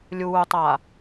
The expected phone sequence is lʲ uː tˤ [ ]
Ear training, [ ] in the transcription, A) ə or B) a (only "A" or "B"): B